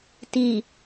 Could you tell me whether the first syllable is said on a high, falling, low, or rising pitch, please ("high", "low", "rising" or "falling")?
low